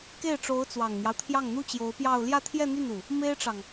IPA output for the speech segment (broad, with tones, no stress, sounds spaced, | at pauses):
k e˥˩ ɪ̯ ʈ͡ʂ o˧˥ ʊ̯ t͡s w ɑ˨˩ ŋ n̪ j ɑ˦ ʊ̯ t̪ʰ j ɑ˥˩ ŋ n̪ u˥ t͡ɕ j o˧˥ ʊ̯ p j ɑ˥˧ ʊ̯ l j ä˥˧ t̪ʰ j ɛ˥˧ n̪ y˥˩ n u˩ | m e˥ ɪ̯ ʈ͡ʂ ɑ˨ ŋ